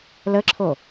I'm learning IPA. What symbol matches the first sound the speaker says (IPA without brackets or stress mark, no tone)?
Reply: l